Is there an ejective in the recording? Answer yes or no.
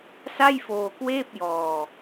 no